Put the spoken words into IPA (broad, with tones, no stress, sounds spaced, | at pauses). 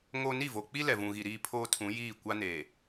ŋ o˦ n i˦˨ v o˨ k͡p i˦ l ɛ˨ v ũ˨ ɣ i˨ ɾ iː˦ pʰ oː˦ tʰ ũ˨˦ j iː˦˨ kʷ a˦ n eː˨